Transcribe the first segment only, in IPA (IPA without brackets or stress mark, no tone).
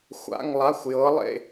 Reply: xʷ